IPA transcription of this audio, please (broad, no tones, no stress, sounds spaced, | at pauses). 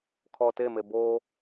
kʰ ɔ t e m e b o